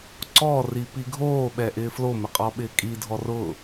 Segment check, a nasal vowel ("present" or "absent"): absent